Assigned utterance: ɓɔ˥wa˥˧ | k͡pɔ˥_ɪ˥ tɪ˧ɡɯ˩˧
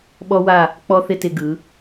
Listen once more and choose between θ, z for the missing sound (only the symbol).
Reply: θ